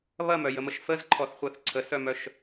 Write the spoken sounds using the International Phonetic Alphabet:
βɐmœjəməʃ fəzǃʰɔθχʷɜθ ǀʰəsœmœʃ

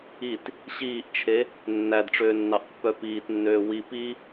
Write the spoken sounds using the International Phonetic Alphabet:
it | ɕiːʔt͡ʃʰe | nːædʈ͡ʂøːnːɑʔpːœ piːtnːøː wi pi

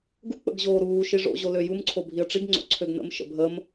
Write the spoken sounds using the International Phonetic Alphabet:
ɡu k͡pə̰ɡʑoːɾuː ʃiʐo̰ ʑoløjum ǀʰobʱiə̯ʈ͡ʂiɡ ŋ͡ǀo̰ǀʰøɡnə̰m ʃə̰bʱəːm

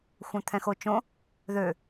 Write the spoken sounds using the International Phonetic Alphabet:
xʷœ̃t̪ʰɛ̃xot͡ʃõ | ðø

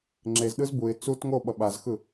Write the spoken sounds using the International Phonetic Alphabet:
ŋ͡ǁezɗɯz buɪ̯ t͡sut ŋo ɓʌɓazxɯ

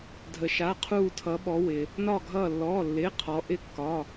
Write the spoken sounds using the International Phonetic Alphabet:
dʱə˩ʃa˩˧˩ qʰuː˧˩tʰʌ˩˧ɓɔ˩˧ wɪ˩ | nɒ˧˩ ɡʱʌː˧˩lːɔː˩˧˩lːɪː˩˧˩ qʰɔ˩˧ʔɪ˧˥kːɒ˩˧˩

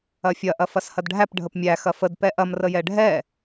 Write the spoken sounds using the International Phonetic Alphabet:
ɐfʲɐ ʔɐfɐshɐdɖʱæp ɖʱəpmʲæ xɐfəd pɛʔɐm rəjɛɖʱɛ

